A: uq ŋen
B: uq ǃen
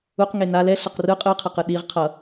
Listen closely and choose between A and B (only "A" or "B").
A